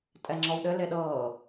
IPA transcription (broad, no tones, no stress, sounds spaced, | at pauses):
tʼ ɛ ŋ͡ǁ ɔ w ɗ ɘ l e ɗ ɤː